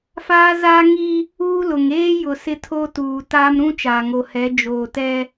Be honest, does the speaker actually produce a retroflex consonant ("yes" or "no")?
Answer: no